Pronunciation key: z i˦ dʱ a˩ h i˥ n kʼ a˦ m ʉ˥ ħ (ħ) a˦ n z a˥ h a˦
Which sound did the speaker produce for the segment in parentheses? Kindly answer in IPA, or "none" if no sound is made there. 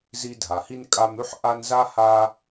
ʔ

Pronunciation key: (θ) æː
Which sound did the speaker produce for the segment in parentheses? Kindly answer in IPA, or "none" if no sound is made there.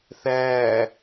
θ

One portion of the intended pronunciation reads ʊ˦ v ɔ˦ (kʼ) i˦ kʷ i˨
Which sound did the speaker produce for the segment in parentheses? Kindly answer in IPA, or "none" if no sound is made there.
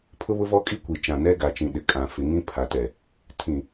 kʼ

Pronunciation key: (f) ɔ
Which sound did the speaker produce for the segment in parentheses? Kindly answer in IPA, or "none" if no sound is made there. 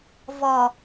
v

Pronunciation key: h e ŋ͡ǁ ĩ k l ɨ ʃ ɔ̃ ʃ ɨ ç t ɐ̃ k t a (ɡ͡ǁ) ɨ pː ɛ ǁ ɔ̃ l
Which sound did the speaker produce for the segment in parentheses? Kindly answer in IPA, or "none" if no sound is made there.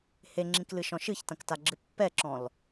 ɡ͡ǁ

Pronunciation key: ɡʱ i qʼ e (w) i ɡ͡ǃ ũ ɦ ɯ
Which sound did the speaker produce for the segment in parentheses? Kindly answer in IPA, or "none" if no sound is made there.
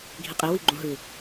w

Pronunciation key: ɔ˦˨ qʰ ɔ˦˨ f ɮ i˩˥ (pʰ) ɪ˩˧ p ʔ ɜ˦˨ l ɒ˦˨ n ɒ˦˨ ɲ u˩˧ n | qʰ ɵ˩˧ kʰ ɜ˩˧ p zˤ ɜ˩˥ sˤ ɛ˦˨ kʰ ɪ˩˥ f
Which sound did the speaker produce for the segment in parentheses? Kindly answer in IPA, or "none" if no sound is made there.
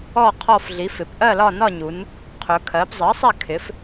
f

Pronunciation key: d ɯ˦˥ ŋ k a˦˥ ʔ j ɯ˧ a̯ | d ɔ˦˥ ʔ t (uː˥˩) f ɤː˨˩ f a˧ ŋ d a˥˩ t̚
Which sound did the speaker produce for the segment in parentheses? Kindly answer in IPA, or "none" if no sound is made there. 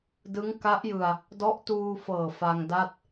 uː˧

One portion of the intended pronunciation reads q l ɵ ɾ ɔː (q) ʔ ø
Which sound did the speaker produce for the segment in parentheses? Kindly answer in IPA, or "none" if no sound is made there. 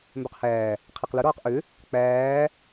q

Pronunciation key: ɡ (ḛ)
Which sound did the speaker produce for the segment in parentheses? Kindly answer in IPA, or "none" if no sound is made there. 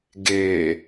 e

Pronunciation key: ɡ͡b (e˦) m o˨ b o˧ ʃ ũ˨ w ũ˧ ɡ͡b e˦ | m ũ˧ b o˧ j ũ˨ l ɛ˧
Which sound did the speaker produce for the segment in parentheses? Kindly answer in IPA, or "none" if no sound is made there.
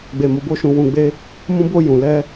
e˨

